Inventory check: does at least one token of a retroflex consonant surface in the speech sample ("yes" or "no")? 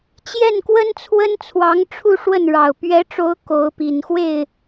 yes